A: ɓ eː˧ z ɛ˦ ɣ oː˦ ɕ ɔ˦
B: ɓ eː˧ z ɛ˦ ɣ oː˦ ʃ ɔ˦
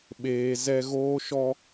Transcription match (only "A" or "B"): B